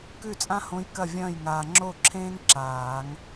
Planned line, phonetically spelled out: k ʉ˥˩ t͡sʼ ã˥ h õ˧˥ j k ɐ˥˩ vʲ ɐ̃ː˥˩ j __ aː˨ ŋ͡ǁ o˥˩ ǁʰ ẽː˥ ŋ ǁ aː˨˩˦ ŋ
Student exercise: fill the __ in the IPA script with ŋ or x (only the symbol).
ŋ